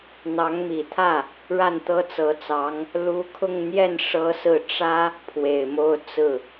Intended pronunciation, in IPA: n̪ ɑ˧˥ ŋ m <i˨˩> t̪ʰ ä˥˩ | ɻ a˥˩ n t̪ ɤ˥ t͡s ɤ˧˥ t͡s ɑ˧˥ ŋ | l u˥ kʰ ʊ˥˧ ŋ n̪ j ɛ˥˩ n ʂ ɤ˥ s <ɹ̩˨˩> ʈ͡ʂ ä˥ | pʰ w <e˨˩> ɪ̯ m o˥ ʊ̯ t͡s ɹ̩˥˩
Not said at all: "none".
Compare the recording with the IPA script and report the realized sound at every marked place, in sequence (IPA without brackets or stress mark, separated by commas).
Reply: i˨˩, ɹ̩˥˩, e˨˩